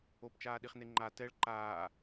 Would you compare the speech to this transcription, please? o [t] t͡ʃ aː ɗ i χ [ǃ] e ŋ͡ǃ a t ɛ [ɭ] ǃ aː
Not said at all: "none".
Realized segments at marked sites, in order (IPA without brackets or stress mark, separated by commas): p, n, ɭ